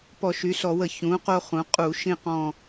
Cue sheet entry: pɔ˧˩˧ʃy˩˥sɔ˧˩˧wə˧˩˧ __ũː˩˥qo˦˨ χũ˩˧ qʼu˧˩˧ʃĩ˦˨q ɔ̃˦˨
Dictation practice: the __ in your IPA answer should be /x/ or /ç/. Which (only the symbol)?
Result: ç